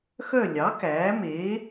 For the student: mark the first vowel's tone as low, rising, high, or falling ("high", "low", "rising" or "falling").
falling